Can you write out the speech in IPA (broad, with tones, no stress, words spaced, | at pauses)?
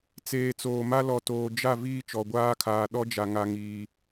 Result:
t͡seː˨ t͡soː˨ma˦ lɔ˨toː˨ d͡ʒa˦˨ viː˦t͡ʃɔ˨ɡʷaː˦kʰaː˨ ɗɔ˦d͡ʒa˨ ŋa˦ŋiː˦